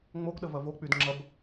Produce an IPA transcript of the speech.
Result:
ŋ͡m o ɡ ɗ ə v ɐ v o k͡p y d ŋ͡ǁ ɐ b

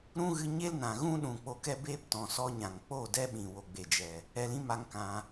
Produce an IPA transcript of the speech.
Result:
ɾ ũ˦ ɣ ɨ˧ ɲ e˦ l n ã˨ ɣ ũ˦ ɗ ũ˨ k͡p o˧ k ɛ˦ b eː˦ p t ɔ̃˨ s ɔ˧ ɲ ã˨ ŋ k͡p o˦˨ d ɛ˦ ɓ ĩ˨ w o˨ ɡ͡b e˨ d͡ʒ ɛ˨ | ɛ˧ l ĩ˦ m a˦ ŋ k ã˧

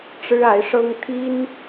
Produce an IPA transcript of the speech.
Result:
ʈ͡ʂ ɻ̩˥ a˧˥ ɪ̯ ʂ ɤ˥ ŋ t̪ʰ i˥ n

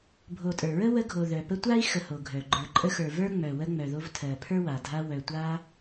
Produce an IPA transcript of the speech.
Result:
bʱ o˨ tʼ ə˞˩ ɹ ə˥ w ə˦ ɡʱ o˨ ð œ˩ p ə˦ tʷ a˥ i̯ x ə˨ h o˩ ɡʱ œ˩ ɡ͡ǃ ə˞˨ ǃʼ ə˦ x ə˞˨ v ə˞˥ ŋ͡m œ˨ w ə˦ ŋ͡m œ˨ ð o˦ v tʰ ɜ˨ pʰ ə˞˥ w a˩ dʱ a˦ w œ˨ tʷ a˦

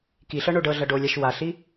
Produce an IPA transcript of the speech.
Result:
k i ɬ ɤ ɳ o ɖ ɤ ɮ ɐ ɖ o lʲ a ʃ w a ɬ i

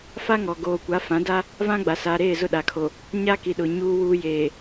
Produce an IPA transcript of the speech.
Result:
f a˦ ŋ ɔ˨ ɡ oː˨ kʷ a˨˦ f ã˨˦ d a˦ | v ã˦ ɡ͡b a˨ s aː˨ ɾ eː˦˨ z ʊ˦˨ ɗ a˨ kʰ o˨ | ɲ a˦ k i˨ ɗ ʊ˨ ɲ uː˨ w uː˨ j eː˨

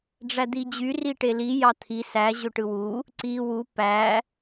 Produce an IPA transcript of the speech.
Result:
ɖ͡ʐ æ d̪ i d͡ʑ y r i ʈ e l i j ɑ t̪ʰ i s æ ʑ ø ʈ ɯ w u | ǀ i w u p æ

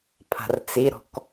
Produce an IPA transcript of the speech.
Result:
pʰ a̤ r t͡s i ɾ ɔ̤ k

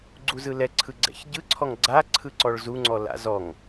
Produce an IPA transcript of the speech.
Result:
ɡ͡ǀ u z ɯ l ɛ ǀʰ ɯ ɡ͡ǀ ɛ̰ ç ɟ ɯ ǀʰ ɔ ŋ ɡ͡ǀ a ǀʰ ɯ ǀ ɔ ɭ z u ŋ͡ǀ ɔ l a̰ z ɔ ŋ

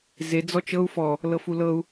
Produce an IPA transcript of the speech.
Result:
z e d͡z ɔ t͡ʃ ɤ u̯ f ɔ | l ɤ f u l ɤ u̯

